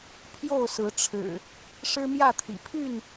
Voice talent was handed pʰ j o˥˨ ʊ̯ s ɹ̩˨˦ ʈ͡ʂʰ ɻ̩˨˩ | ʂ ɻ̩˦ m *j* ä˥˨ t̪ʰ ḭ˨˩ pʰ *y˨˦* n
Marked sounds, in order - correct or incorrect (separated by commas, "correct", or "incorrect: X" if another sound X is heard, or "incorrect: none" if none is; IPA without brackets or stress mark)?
correct, incorrect: y˥˨